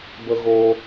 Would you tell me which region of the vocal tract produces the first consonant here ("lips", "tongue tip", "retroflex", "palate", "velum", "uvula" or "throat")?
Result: lips